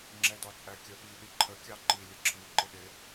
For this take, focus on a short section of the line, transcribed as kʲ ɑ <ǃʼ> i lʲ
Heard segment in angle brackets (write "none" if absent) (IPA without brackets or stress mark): ǃ